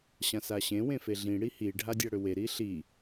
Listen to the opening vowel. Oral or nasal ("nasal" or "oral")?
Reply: nasal